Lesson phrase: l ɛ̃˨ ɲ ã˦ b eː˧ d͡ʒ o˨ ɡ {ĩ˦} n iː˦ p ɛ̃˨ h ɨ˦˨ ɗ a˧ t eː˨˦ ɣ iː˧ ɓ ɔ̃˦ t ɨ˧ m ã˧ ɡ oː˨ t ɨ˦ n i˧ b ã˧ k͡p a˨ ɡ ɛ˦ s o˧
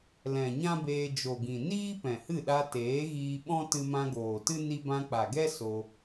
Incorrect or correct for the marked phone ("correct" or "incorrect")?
incorrect